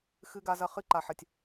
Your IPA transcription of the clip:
x ɨ˦ ɡ a˦ z ɐ˦ χ ɨ˦ ǃ a˨ ħ ɐ˨ tʲ

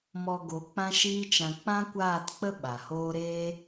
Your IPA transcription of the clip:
m ɔ˧ ɡ o˨˦ k͡p ã˦ ʃ iː˦ t͡ʃ ã˧ k͡p ã˦ kʷ aː˦˨ t k͡p ə˦ ɓ a˨ h oː˦ ɾ eː˦

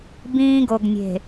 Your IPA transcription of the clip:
b ĩː˦ ɡ o˨ ɡ nʲ e̤˨

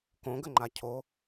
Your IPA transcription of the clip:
k õ ɡ ə ŋ͡ǃ a cʰ o

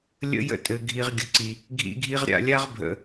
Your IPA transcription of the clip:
lʲ ə̰˦ j ə̰˦ tʼ ɘ˨ ɡʱ i˨ ʁ ɡʲ ə˨ ǀ i˨ | ɡʱ ḭ˦ ɡʱ i˦ ʁ ɾʲ a̰˨ lʲ a˦ ʁ bʱ ə̰˨

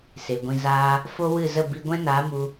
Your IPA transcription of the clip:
s e˨ ɡʷ ĩ˧ z aː˦ | f o˦ w ɨ˦˨ z ə˦˨ b i˧ ɡʷ ɛ̃˦ n aː˨˦ m u˧

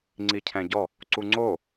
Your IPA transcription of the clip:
ŋ͡ǀ i cʰ ɛ̃ ɟ ɔ | ǀ u ŋ͡ǀ o

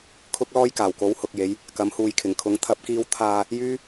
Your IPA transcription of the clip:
kʰ ʊ˥ k̚ l ɔː˥ j k aː˨˩ w k o˨˥ w h ʊ˨ k̚ j e˨˧ j | k ɐ˨˥ m h uː˨ j kʰ ɪ˨˩ ŋ kʰ ʊ˨˥ ŋ t̪ʰ ɐ˨˥ p̚ k iː˧ w t̪ʰ aː˨ | j yː˥

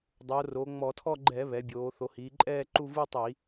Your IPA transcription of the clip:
dˤ o˩˧ r o˩˧ ŋ͡m ɔ˧˩˧ tʰ ɔ˥˧ ɡ͡ǃ ɛ˧˩˧ β ɛ˩˧ bʲ oː˩˧ θ o˩˧ h iː˩˧ ǃʼ ɛː˥˧ ǃ u˥˧ v u˥˧ tˤ i˧˩˧

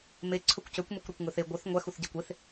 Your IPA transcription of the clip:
m e ǀʰ ɵ kʷ c ø kʷ m e kʷ ɾ œ kʷ ŋ ɵ θ e ɡʷ œ θ ŋʷ æ x u θ ɟ æ kʷ e θ

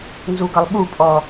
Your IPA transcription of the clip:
n z u ɡ ʌ lˠ ɓ u pʼ ɔ

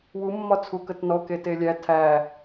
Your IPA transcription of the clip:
w u mː ɒ t͡sʰ u k ə t n ɔ k e t e lʲ æ tʰ æ

